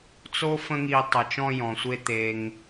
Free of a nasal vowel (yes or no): no